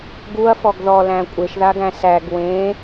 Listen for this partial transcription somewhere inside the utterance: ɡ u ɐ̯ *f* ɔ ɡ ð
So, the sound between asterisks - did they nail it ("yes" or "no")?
yes